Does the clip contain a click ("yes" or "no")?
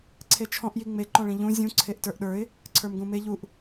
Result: yes